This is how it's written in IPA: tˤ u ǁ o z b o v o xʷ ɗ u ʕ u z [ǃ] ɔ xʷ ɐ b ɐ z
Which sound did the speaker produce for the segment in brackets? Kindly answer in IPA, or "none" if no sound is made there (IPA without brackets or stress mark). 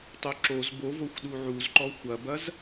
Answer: ǃ